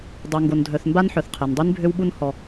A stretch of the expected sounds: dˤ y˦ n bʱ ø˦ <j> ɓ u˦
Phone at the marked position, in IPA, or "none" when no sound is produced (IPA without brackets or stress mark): w